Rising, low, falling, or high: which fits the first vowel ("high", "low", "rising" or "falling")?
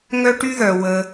high